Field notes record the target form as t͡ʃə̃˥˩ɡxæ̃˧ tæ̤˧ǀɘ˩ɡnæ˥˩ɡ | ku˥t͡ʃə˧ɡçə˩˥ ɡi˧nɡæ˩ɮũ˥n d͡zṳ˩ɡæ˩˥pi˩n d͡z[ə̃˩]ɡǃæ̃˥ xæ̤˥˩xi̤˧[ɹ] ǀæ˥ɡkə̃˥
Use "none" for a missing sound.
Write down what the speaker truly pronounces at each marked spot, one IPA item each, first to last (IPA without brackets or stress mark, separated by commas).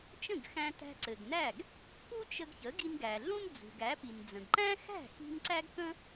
ə̃˩, n